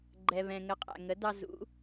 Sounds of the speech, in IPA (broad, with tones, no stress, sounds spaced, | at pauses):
ɡ͡ǃ ɛ˩ β ɛ̃˩ ŋ ə˩˥ qʼ æ̰˩ ŋ ə˩˥ d ɑ˧ z ṵ˩˥